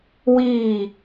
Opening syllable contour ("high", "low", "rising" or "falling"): falling